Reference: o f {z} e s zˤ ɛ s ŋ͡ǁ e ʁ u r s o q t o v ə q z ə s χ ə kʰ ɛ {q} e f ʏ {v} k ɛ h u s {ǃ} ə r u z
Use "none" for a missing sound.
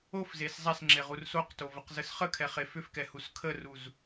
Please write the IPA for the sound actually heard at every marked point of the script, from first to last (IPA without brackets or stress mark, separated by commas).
z, χ, f, kʰ